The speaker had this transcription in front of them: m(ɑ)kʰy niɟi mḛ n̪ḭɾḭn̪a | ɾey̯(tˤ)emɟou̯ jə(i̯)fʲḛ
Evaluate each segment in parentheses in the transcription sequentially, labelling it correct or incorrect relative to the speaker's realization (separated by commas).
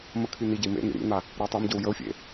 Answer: incorrect, correct, incorrect